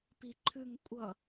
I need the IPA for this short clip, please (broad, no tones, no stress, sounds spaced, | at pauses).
p i ǃʰ ʉ ŋ kʷʼ ʌ